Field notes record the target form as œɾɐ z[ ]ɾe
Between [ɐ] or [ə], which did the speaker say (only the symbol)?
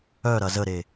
ə